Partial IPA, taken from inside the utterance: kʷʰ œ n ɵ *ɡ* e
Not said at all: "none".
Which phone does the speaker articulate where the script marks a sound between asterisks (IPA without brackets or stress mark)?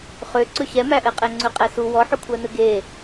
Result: ɡ